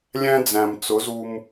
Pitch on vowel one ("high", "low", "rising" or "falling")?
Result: high